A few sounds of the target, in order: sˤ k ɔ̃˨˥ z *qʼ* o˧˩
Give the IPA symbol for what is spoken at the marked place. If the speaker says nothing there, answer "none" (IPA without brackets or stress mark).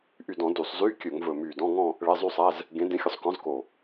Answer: k